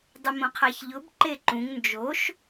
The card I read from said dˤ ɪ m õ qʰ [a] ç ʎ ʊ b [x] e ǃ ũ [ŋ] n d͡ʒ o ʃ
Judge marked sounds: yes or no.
yes, no, yes

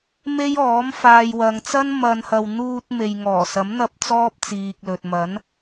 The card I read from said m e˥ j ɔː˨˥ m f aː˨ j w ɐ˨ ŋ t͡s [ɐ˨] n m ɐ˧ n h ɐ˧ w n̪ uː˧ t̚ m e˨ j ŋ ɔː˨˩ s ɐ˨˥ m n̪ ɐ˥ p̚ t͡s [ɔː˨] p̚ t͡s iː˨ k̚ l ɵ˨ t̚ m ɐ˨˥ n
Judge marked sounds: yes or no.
no, no

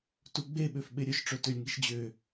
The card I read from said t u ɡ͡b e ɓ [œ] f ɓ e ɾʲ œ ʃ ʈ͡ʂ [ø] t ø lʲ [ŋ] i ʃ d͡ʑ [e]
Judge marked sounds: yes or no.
no, no, yes, no

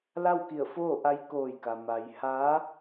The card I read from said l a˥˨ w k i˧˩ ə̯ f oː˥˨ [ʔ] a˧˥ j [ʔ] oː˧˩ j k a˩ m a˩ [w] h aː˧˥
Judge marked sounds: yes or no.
yes, no, no

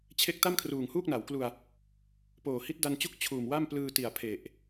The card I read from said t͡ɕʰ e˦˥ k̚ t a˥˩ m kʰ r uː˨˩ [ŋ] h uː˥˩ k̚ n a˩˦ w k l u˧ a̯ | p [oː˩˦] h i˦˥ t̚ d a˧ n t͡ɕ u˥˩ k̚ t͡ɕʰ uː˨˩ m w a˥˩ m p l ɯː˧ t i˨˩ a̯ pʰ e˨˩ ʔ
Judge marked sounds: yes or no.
yes, no

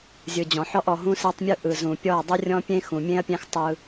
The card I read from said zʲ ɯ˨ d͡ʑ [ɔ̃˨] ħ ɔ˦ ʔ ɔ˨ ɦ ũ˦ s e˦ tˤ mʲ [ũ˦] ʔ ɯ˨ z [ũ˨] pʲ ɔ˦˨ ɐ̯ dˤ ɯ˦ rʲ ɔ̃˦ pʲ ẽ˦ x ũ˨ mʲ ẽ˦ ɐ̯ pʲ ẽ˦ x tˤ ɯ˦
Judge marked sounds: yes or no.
yes, no, yes

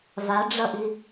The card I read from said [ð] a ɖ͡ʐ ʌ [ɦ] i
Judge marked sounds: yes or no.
no, no

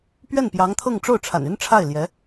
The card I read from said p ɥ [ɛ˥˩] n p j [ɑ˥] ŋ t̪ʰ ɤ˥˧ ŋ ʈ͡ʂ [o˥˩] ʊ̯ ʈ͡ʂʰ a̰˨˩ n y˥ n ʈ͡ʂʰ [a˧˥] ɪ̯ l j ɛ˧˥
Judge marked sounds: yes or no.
yes, no, yes, no

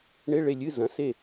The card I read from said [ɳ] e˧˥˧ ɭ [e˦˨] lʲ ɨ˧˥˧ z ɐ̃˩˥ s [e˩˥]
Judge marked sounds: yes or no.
yes, yes, no

